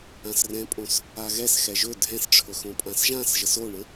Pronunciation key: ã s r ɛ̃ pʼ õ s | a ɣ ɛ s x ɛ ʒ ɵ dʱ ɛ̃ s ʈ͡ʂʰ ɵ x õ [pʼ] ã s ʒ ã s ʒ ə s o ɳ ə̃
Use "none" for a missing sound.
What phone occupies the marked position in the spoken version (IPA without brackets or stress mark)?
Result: pʼ